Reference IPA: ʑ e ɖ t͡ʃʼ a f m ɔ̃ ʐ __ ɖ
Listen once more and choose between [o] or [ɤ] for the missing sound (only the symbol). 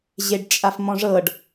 ɤ